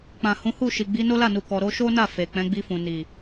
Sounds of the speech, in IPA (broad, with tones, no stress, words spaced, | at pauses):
k͡pã˨hũ˨˦ hu˦˨ʃi˨ɡ͡bi˨˦ no˦la˦˨nu˨kɔ˨ ɾo˧ʃo˦na˦˨ fe˨k͡pɛ̃˨˦ ɡ͡bi˧fũ˨ni˨